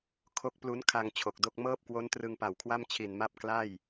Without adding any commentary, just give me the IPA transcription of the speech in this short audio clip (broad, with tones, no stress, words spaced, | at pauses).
kʰo˦˥k̚plu˦˥n kʰa˧ŋ t͡ɕʰo˨˩k̚do˥˩k̚ mɤː˥˩p̚kwo˦˥n trɯ˧ŋpa˨˩wkʰwa˥˩m t͡ɕʰi˨˩nma˦˥p̚ kla˥˩j